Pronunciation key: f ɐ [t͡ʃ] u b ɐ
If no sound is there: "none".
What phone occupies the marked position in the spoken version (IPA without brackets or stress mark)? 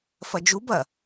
d͡ʒ